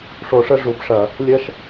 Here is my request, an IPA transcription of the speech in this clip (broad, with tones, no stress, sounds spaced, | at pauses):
ʂ o˨ ʂ ə˦ ʐ u˨ b ʂ ɐ˨ | lʲ ɐ˦ ʃ